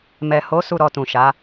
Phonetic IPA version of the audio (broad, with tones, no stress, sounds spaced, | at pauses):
m ɛ˨ h o˨˦ s u˦˨ ɾ ɔ˧ t ũ˨ ʃ a˨˦